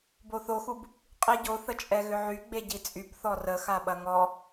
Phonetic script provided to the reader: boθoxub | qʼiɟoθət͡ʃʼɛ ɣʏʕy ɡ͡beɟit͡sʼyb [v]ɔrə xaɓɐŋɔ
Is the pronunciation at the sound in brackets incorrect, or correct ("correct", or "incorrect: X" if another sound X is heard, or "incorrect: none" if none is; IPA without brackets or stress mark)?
incorrect: θ